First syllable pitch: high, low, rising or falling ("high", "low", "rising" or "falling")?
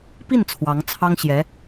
falling